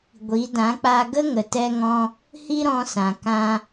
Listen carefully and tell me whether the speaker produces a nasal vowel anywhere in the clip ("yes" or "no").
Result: yes